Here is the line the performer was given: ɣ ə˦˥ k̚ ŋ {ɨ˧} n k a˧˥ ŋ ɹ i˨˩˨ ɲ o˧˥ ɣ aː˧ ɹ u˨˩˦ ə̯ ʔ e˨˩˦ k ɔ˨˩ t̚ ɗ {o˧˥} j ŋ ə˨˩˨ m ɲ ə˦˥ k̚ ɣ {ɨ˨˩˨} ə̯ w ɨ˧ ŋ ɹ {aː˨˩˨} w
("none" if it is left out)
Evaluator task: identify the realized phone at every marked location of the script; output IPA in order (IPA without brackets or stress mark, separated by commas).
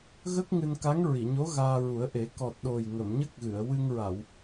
ɨ˧, o˨˩, ɨ˨˩˨, a˨˩˨